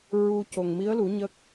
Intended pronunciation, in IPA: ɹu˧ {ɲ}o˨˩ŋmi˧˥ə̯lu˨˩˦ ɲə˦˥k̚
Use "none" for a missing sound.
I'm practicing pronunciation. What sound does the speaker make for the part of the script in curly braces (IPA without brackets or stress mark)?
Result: c